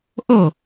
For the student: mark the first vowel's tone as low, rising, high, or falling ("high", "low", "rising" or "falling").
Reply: falling